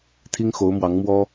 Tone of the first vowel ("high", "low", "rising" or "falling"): high